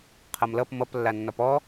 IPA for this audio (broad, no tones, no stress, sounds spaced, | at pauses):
qʰ ʌ m l ʌ p m ʌ p lː a nː ɒ p ɔ